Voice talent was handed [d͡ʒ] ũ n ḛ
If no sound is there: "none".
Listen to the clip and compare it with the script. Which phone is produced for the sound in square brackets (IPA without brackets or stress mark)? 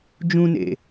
d͡ʒ